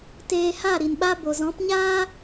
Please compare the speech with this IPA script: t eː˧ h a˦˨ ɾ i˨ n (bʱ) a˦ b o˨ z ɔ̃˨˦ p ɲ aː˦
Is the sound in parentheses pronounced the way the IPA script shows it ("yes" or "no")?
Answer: no